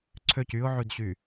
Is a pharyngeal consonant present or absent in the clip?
present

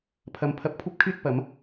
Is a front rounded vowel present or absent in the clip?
present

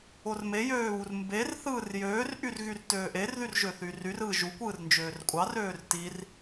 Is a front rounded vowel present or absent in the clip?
present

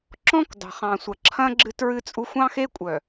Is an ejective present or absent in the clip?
present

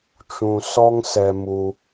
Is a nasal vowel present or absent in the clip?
present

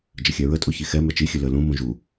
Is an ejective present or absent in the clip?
present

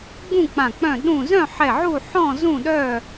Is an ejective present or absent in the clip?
absent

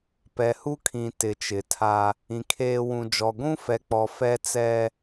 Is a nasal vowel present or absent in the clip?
present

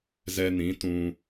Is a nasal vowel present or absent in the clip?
present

